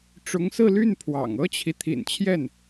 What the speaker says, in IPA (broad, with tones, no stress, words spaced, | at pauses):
ʈ͡ʂʊ˧˥ŋsɹ̩˥˧ly˥˩n pʰwɑ̰˨˩ŋ ɤ˥t͡ɕʰi˨ t̪ʰḭ˨˩nt͡ɕʰjɛ˥˩n